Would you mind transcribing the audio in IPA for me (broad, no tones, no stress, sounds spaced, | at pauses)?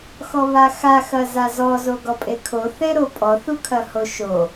x ɔ β a x a x ɐ z a z ɔ z o ɡ ɔ pʼ e kʰ o θ e ɾ o pʼ ɔ θ u kʰ ɐ h o ʃ o